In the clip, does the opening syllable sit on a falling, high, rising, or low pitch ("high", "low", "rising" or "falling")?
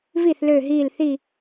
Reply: falling